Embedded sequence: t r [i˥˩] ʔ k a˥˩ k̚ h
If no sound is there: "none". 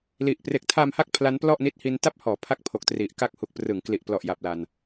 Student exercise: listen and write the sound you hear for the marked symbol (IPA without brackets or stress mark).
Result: i˨˩